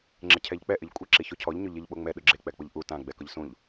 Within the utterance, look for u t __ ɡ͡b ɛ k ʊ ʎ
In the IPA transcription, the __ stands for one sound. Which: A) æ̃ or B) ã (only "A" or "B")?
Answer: B